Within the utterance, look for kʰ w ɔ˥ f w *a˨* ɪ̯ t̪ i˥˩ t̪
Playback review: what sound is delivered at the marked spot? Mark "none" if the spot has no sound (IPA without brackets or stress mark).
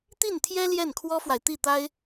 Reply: a˨